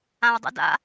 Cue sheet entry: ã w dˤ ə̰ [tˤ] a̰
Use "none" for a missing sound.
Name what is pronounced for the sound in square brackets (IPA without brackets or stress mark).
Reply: d